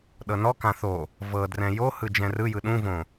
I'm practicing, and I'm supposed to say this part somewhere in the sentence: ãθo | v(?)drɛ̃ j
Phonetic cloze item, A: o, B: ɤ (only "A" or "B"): B